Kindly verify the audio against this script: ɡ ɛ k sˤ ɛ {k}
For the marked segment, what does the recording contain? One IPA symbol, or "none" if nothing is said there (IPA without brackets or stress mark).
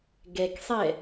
none